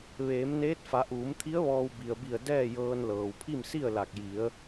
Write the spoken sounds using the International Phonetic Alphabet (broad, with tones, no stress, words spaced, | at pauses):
ʋeː˩˧mneː˧˥t̚ fa˩˧ʔuː˩˧mt̪ʰi˧˥ə̯ ʋɔː˧w bi˩ə̯bi˧˩ə̯ dɛː˥˨jɤː˧nlɤː˩w pʰi˥˨msi˥˨ə̯la˧˩k̚ ji˩˧ə̯